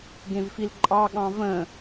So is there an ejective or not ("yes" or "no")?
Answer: yes